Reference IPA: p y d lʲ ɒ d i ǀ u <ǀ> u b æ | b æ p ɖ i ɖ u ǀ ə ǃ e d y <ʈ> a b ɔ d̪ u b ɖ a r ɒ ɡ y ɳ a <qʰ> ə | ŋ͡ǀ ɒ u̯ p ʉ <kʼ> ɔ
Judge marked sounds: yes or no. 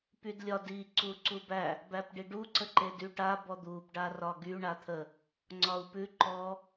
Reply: yes, yes, no, no

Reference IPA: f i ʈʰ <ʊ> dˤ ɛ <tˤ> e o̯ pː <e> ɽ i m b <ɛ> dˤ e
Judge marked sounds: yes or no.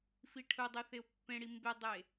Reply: yes, no, no, no

